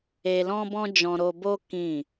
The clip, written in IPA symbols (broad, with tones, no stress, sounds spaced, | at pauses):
e˧ l ɔ̃˦ b ɔ̃˦ d͡ʒ ɔ̃˧ ɾ o˧ b o˦ k ĩ˦˨